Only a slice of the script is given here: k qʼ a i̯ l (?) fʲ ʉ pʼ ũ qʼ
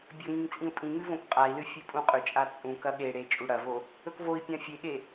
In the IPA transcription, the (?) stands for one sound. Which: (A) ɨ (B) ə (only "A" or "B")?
A